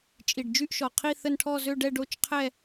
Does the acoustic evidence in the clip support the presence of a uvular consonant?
yes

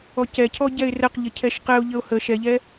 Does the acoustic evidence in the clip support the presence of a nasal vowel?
no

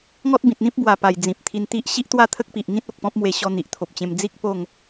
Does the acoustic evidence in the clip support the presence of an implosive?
no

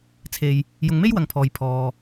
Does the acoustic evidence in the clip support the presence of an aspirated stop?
yes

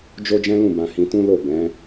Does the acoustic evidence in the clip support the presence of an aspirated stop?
no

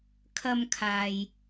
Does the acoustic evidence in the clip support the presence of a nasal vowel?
no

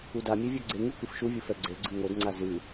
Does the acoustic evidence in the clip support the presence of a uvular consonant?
no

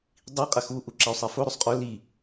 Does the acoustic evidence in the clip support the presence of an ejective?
yes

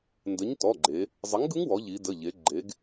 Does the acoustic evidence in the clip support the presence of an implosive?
no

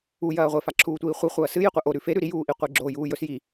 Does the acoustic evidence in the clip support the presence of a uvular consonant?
yes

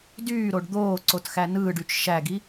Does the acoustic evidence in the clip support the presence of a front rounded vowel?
yes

